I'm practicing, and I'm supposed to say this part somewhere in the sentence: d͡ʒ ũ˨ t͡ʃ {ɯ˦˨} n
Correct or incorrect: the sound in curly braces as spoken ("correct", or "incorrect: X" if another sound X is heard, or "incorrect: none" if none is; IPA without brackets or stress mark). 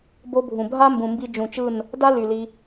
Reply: correct